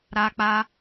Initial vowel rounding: unrounded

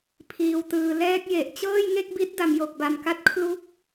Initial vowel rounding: unrounded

